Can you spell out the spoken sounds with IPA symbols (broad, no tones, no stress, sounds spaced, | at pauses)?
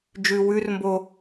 d͡ʒ ʉ w ʉ r m b o